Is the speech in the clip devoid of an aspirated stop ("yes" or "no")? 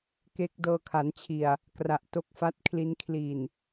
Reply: no